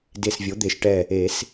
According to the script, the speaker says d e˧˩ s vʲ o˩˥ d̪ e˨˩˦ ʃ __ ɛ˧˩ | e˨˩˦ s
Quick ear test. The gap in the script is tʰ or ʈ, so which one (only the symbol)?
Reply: ʈ